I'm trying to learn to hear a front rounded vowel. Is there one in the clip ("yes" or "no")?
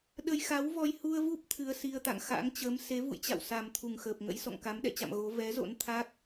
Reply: no